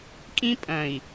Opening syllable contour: high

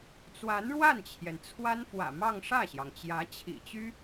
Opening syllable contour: rising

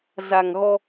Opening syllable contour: low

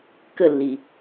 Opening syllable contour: falling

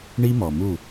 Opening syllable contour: high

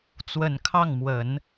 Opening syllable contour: low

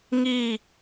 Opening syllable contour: falling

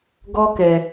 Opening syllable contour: high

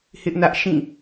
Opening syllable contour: high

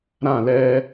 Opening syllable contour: falling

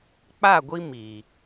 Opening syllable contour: falling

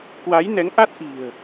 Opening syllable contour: rising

